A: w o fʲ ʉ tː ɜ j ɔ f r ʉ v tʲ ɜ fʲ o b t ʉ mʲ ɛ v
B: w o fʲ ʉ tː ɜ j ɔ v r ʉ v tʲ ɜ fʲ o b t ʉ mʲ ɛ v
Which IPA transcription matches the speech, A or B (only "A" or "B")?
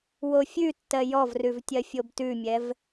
B